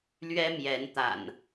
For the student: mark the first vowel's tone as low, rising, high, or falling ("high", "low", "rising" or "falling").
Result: high